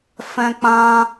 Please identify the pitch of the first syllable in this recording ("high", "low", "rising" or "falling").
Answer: high